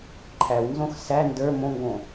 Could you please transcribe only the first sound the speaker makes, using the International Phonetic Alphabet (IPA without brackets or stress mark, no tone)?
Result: ǃʰ